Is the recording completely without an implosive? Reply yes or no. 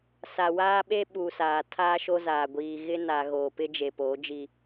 no